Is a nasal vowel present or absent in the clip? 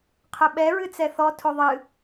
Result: absent